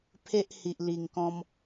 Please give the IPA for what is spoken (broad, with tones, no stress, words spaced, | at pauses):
pʰe˦ʔhi˨ʔli˨˩ŋkɔ̃˧m